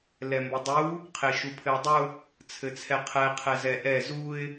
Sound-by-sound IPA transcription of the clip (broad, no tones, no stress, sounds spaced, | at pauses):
l ɛ m b ɘ dˤ u | qʰ e ʃ u pʰ ɘ ʊ̯ dˤ ʊ | t͡sʰ ɘ t͡sʰ ɛ qʰ ɛ qʰ ɛ z ɛ ʔ ɛ z u ɪ̯